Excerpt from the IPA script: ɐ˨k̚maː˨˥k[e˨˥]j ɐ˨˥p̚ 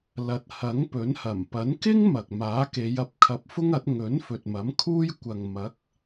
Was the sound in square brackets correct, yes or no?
no